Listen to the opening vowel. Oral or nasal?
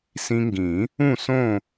nasal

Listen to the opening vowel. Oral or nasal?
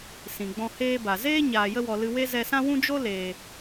nasal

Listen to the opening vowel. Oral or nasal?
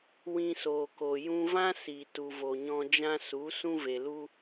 nasal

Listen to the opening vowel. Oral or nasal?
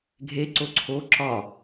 oral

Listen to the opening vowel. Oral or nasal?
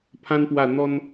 nasal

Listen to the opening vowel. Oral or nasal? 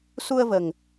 oral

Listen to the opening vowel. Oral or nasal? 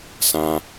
nasal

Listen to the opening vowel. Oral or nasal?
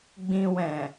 nasal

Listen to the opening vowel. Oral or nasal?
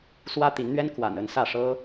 oral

